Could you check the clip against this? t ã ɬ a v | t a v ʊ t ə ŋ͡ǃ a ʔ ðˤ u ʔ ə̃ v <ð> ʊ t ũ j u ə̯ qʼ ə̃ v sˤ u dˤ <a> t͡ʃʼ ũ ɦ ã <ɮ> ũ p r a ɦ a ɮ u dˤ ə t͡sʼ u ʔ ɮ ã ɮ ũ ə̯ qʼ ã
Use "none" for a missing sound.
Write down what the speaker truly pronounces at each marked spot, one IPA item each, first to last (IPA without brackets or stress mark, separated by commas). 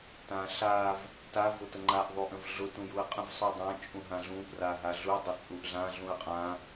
ɮ, ã, ɮ